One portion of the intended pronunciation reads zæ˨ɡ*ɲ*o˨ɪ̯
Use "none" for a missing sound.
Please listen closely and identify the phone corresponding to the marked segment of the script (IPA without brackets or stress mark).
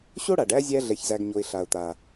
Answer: ɲ